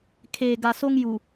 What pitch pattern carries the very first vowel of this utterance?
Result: low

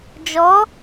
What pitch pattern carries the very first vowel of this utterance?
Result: rising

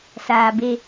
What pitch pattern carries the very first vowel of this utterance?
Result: low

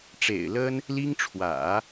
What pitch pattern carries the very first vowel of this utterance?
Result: low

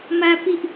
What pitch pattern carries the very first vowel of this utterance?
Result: high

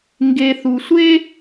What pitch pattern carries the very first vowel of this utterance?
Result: low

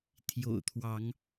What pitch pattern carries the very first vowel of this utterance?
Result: low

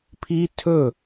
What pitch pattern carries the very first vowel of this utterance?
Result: high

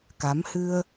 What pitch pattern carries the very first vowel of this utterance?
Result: rising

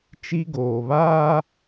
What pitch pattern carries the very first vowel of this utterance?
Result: high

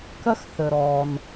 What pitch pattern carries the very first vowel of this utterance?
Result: high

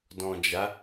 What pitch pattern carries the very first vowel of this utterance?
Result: low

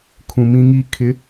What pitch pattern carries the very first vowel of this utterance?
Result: low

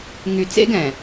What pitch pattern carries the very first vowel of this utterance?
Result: low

